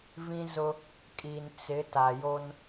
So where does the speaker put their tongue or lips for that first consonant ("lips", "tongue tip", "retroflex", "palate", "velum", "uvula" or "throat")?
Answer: lips